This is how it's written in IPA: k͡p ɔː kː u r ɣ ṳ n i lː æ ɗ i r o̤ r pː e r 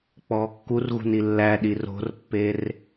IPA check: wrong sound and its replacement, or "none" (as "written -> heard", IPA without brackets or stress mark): none